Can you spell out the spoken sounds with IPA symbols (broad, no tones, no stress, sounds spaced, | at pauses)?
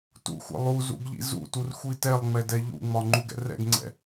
t ṵ xʷ ɛ̰ lˠ u z ṵ ɡ ʎ ḭ z ṵ t u r xʷ i t ɛ lˠ ŋ͡m ɛ d ɛ ʎ ṵ ŋ͡m ɒ ŋ͡ǃ u ɡ ɛ̰ r ɛ̰ ɡ ŋ͡ǀ ɛ̰